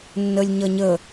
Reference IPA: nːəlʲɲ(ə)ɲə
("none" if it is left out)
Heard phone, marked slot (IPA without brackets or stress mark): ʌ